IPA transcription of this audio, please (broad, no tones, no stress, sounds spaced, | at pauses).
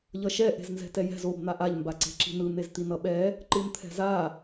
ʎ ʌ ʃ ɛ ʔ e̤ z n z ɛ̤ t ɛ j ɛ̤ z o b n̪ a ʔ a ʎ m b a ǀ e̤ ǁ i̤ n ɯ n̪ e z t̪ i n ʌ ɓ ɛ | ǃ ɯ n t̪ʰ ɛ̤ z a